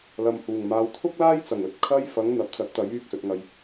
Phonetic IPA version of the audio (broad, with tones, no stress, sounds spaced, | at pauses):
l ɐ˨ m h uː˨˩ ŋ m aː˨˧ w t̪ʰ ʊ˥ k̚ l aː˥ j t͡s ɐ˨˩ ŋ ɵ˧ t̚ kʰ ɐ˥ j f ɐ˨˥ ŋ n̪ ɐ˨˥ p̚ t͡s ɐ˨˥ t̚ t̪ ɐ˨˥ j yː˧ k̚ s ɵ˨ t̚ ŋ ɐ˨ j